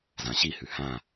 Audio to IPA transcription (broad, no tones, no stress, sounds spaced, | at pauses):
z ã ɕ i h ʉ h ã